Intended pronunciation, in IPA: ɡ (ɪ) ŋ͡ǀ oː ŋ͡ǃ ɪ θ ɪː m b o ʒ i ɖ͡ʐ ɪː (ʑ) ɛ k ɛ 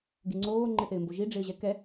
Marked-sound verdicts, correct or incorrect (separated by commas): incorrect, correct